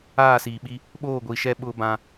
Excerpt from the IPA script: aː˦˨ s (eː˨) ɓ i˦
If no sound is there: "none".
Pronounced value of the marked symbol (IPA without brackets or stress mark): iː˨